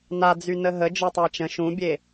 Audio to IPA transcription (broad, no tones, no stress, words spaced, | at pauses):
nad͡zy nəɦə d͡ʒɔtˤat͡ʃə̃ ʃũbʲe